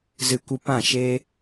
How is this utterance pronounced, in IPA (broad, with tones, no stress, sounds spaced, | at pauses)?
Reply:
z ɨ˧ kʷ ɨ˧ p ã˦˨ ʃ e˦